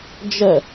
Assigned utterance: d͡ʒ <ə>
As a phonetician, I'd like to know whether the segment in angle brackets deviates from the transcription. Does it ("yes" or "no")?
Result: no